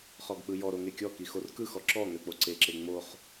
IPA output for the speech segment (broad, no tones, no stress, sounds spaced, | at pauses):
χ ɔ ɡ k͡p ɯ j ɔ ɾ o ŋ e kʲ ɔ k i x o r k ɯ x ɔ ǁ ɔ ŋ ø k͡p o ǀ e ǁ e ŋ͡m o χ